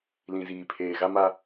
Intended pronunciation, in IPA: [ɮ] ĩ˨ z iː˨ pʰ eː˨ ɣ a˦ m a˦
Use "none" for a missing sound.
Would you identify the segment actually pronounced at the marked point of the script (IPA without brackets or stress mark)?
l